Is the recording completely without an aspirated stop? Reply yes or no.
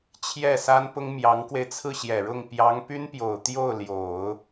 no